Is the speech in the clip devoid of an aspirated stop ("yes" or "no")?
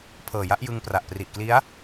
no